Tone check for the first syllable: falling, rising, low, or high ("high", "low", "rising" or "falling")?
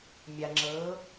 low